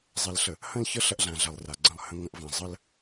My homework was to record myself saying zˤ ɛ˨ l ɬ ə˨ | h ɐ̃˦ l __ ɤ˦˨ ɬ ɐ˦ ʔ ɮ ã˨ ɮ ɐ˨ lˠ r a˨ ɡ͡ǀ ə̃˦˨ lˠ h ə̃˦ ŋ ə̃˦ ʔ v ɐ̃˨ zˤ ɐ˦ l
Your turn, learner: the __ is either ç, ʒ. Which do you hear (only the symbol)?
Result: ç